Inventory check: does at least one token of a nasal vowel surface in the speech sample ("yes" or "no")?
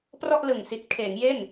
no